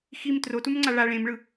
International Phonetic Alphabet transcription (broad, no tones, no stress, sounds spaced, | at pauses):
x i m t r o t u m ŋ͡ǀ a ɭ a ɭ ẽ m ɭ ɯ